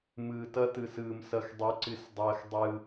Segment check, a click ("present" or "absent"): present